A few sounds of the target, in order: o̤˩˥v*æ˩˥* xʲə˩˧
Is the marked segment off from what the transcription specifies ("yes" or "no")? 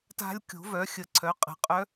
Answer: yes